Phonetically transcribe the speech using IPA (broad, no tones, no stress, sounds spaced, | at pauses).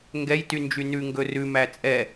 ŋ ɡ ɛ j t y n d͡ʒ y n ʉ ŋ ɡ ɵ r ʉ m æ t͡sʼ ɛ